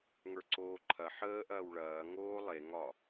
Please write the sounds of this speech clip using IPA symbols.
ŋ ə˞ ǀ oː ǃʰ ɐ ħ əː ʔ ɐː w ɭ ɐː ŋ oː lˠ e ŋ ɒ

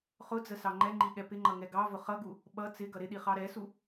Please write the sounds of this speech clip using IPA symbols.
χ ʊ d͡z ə s ɑ ŋ͡ǃ ɛ ŋ͡ǃ i ɠ ɛ p ɪ ŋ͡ǃ ʌ ŋ ɛ ɡ ɑ v ʊ χ ʌ ɡ u | ɓ ʌ t͡s ɪ ɡ ʌ ɾ ɪ ɗ i χ ɑ ɾ ɛ s u

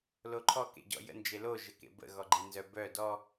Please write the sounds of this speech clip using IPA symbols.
l o ǃʰ ɔ k ḛ ɟ ɔ̰ j ə̰ n d͡ʒ e l o ʒ ə k ḛ b ə̰ ɣ ɔ ɡ͡ǃ i n z œ b œ d ɔ

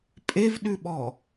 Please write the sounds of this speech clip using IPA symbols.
pʼ e v ɗ ʉ ɓ ɔ

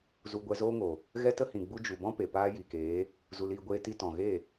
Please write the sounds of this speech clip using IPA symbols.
z u˧ ɡʷ ɛ˧ z oː˦ ŋ o˨ | ɣ ɛ˦ t ə˦ h ĩ˨ ɡ͡b u˧ d͡ʒ u˨ b ɔ̃˦ p e˨ p aː˦ j i˨ k eː˨˦ | z u˧ l iː˧ ɡʷ eː˦ t i˧ t ɔ̃˨ ɣ e˦˨

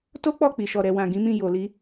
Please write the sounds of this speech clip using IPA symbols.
t o˦ k͡p ɔ˦˨ k͡p i˨ ʃ ɔ˨ ɾ ɛ˨ w ã˨ ɡ ĩ˨˦ m ĩ˦˨ j o˨ l i˧

